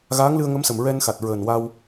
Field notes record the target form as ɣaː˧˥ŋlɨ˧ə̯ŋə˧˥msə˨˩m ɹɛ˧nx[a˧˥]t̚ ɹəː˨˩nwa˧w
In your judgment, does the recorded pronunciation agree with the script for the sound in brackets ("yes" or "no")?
no